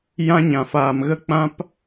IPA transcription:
j ã˧ ɲ ã˨ f aː˨ m ɣ ə˧ k͡p ã˧ p

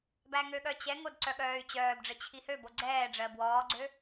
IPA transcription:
b æ ŋ ø ɠ œ t͡ɕ ɛ ŋ o d ǀ œ ɠ œː y̯ t͡ɕ œː b ɖ͡ʐ ə t͡ɕʰ i h ø b o ɡ͡ǀ ɛː ɖ͡ʐ ɜ b w ɔː ɡ͡ǀ ø

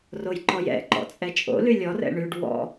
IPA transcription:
r o j ǃ ɔ j ɛ̰ ǃ ɔ̰ t͡sʼ ɛ t͡ʃʼ o̰ l y lʲ ɔ r ɛ̰ ɳ y ɖ w ɔ̰

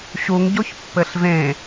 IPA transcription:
ɕ u ŋ ɟ o ç pː ɘ ɬ v ẽ

